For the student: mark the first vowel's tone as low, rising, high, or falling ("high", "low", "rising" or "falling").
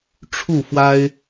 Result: falling